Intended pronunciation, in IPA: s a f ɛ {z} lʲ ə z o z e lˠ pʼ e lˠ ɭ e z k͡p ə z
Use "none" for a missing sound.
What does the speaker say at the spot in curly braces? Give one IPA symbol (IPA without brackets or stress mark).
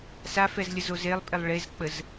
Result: z